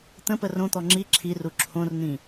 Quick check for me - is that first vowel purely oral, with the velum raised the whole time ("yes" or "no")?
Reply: no